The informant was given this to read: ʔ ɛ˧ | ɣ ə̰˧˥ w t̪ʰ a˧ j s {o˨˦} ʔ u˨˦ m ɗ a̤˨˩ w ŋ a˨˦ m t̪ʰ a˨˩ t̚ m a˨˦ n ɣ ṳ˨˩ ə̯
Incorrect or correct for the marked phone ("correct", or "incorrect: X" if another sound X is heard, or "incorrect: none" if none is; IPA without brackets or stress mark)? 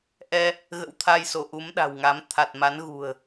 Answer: incorrect: o˧˩